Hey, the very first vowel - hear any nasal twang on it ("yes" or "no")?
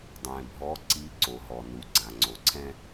yes